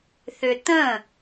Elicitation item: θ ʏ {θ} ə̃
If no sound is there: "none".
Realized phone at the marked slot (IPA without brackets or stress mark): t̪